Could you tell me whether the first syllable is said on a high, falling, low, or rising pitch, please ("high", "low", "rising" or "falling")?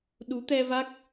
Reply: rising